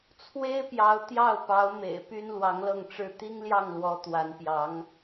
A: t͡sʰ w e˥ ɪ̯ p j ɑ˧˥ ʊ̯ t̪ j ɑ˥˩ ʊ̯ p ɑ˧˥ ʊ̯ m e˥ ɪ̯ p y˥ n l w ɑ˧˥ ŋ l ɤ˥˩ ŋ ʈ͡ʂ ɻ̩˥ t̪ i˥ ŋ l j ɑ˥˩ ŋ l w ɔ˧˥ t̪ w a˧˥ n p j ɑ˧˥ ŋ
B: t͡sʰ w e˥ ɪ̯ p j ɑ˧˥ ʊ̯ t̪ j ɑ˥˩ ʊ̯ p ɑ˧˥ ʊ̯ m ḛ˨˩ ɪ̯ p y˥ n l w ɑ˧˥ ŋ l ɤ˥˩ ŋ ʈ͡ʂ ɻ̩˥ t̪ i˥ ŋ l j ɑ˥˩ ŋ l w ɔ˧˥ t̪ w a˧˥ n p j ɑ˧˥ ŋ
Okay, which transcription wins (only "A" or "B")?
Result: B